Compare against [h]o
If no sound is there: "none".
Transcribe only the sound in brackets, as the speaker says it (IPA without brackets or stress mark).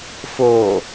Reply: f